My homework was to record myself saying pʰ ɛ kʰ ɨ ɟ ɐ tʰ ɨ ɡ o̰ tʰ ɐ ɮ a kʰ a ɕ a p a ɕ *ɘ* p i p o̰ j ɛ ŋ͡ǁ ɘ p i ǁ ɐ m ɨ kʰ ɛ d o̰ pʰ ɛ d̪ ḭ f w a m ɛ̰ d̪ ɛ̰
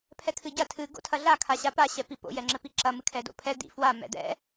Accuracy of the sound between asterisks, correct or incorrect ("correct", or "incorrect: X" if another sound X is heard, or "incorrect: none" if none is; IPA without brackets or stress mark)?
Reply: incorrect: ɛ